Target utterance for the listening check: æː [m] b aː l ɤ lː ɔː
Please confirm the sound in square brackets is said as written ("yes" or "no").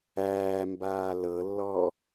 yes